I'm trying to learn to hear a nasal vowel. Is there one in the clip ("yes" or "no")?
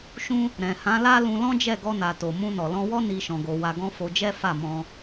yes